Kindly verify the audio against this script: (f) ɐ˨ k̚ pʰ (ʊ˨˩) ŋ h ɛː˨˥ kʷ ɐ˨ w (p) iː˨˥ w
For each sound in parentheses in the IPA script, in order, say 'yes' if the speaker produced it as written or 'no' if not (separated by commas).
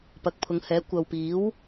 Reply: no, no, yes